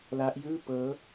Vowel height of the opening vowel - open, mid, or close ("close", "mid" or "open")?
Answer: open